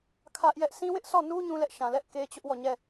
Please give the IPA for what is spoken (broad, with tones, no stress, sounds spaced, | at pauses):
kʰ ä˦ ʔ j ɛ˦ ʔ sʰ ĩ˦ w ɪ˦ ʔ s ɔ˦˨ n u˦ ɲ ũ˦ l ɛ˦ ʔ ʃ ã˨ l ɛ˦ ʔ k e˦ t͡ɕ ʊ˦ ʔ w ɔ˦˨ ɲ ɛ˦˨